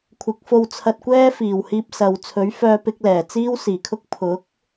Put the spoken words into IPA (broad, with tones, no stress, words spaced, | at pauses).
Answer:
kʷʰɪ˨˥k̚fo˧wt͡sʰɐ˧t̚kʷɛː˥ fiː˨˩whiː˧p̚sɐ˨w t͡sʰɵ˨˥ɥfœː˧pɪ˧k̚ lɛː˨˩t͡siː˥wsiː˨˩kʰʊ˥k̚ pʰʊ˨˥k̚